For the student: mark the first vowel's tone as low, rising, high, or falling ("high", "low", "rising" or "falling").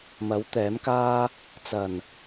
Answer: rising